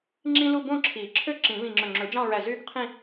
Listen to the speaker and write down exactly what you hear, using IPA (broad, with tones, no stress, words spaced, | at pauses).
ŋ͡ǁĩ˥lu˥˧ bõ˥˧ǁʰi˨˩˦ ǁʰø˥ ǁĩ˨˩˦βĩ˧˩ŋ͡ǁɵ˧˩ ŋ͡ǁɵ˨˩˦d͡ʒɑ̃˥˧ɹæ˧˩ zy˥˧ɡqʰĩ˥˧